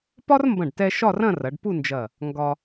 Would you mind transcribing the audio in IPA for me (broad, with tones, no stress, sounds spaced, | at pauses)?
p ɒ˥ r m b ɐ̃˧˩ ɖ t ɛ˧ ʃ ɒ˥˧ r ɐ̃˥˧ r ɐ˩˧ ɖ p u˥˧ n d͡ʒ ɐ˧˩ | ŋ ɡ ɒ˧